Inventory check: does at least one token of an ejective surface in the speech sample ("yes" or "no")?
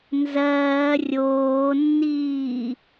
no